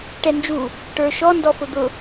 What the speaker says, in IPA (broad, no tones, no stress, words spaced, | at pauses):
ʈɛnd͡ʒu | ʈə˞ʃɔ ndɔfʊd̪ʊ